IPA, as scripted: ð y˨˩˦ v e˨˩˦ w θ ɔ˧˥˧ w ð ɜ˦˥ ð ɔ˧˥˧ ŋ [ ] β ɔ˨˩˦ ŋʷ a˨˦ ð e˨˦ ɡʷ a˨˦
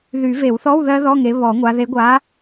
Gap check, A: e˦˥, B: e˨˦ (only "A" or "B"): B